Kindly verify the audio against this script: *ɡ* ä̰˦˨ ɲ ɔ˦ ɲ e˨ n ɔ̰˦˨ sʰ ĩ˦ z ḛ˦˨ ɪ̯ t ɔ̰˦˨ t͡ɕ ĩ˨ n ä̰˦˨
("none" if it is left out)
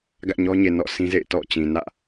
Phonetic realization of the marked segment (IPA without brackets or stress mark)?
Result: ɡ